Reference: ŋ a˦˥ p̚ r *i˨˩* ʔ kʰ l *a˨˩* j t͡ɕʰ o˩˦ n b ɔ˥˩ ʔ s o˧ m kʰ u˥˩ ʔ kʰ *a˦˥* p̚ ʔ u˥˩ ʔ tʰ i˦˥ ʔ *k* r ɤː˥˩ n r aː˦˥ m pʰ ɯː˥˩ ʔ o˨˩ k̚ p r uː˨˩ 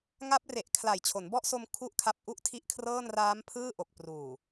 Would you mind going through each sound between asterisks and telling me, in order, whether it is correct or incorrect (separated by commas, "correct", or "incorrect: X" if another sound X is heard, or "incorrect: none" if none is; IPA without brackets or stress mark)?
incorrect: e˨˩, correct, correct, incorrect: kʰ